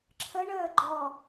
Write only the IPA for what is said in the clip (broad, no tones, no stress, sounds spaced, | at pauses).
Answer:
ǁʰ ə ɳ əː ɡ͡ǃ ɔ